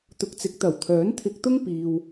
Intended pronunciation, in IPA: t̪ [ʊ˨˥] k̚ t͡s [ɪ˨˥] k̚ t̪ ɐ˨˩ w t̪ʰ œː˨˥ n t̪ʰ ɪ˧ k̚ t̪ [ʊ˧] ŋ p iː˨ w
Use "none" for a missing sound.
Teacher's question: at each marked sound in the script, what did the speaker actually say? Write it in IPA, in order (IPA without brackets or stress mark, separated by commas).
ʊ˨˥, ɪ˨˥, ʊ˥